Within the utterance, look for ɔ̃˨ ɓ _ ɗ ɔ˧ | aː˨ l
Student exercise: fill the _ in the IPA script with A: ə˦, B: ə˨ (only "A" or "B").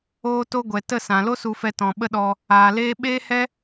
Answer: A